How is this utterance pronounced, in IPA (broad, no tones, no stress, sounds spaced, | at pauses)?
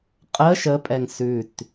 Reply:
qʼ ə ʃ ə pʼ ɛ ŋ s ʉ t